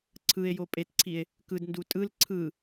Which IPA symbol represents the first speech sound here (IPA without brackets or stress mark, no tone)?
ǀʰ